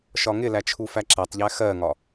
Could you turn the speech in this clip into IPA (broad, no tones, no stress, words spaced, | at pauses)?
ʃɒŋɪlæ t͡ʃʰufæǁætˤʎæ xɜŋɒ